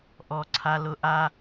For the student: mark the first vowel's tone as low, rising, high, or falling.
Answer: high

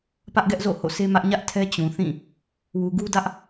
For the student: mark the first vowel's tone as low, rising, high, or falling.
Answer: high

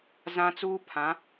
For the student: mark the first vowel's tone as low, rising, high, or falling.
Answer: high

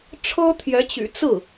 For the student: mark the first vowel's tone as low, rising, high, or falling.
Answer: high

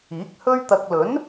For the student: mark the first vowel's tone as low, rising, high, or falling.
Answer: rising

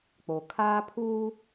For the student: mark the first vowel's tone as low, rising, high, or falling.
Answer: low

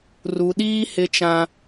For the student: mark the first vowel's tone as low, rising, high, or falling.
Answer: low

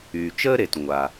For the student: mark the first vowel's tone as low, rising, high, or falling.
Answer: low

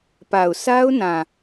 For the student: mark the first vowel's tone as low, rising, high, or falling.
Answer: low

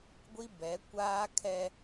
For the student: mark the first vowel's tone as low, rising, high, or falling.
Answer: high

